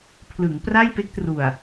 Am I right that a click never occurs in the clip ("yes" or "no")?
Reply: yes